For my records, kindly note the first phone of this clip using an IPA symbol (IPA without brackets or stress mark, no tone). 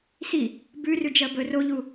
s